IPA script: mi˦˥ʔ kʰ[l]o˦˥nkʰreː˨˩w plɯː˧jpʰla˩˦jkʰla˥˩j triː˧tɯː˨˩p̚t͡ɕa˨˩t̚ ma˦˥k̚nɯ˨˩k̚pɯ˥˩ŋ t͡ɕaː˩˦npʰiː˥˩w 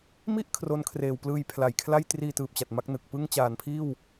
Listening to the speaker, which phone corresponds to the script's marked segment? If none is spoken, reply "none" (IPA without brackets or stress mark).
r